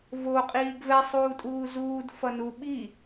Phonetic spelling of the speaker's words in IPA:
voqʼiːɡ vɛsˤuːtʼuː zuːd fʌnu ɓi

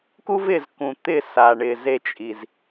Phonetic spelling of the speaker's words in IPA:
ku˦vɪː˨z kũ˨ t̪ɪ˦˨sa˨ ɳɪː˨ze˦˨ t͡ʃʼi˨z

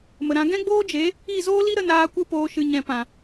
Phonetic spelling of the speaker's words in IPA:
mə˨ɾã˨˦ ɡɛ̃˦ɡ͡boː˦d͡ʒe˨˦ | i˦˨zoː˦li˦ ɾə˧naː˧kʷɨ˧ poː˨ʃɨ˨ɲɛ̃˨pã˨

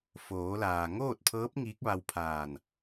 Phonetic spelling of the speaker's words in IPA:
foː˩˧laː˩ŋoː˥˨t̚pʰɤː˧˥p̚ ŋiː˧˥k̚ʋa˧wpʰaː˧˩n

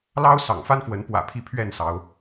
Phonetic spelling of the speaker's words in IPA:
lɑ˦ʊ̯ sɑ̰˨˩ŋfa˦nfwə˨˦n pwä̰˨˩ pʰi˨˦ pʰɥɛ˥˨nsɑ˨˦ʊ̯

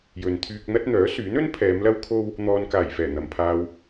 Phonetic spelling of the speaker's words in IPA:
jɵ˨nt̪ʰyː˧k̚n̪ɐ˥t̚ n̪œː˨˥syː˨˥nɵ˥n pʰɛː˨˧mlɐ˥wkʰo˥w | n̪ɔː˨nkaː˨˩jfɛː˨˩ n̪ɐ˨mpʰaː˧w

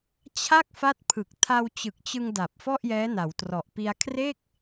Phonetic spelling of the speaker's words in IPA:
t͡ɕʰa˥˩k̚fa˦˥t̚ pʰɯ˨˩k̚ tʰa˧wt͡ɕɯ˨˩k̚t͡ɕɯ˧ŋ da˨˩p̚ fɔ˥˩ʔjɛː˦˥na˩˦wtrɔ˨˩ʔ pi˧a̯kʰre˥˩k̚

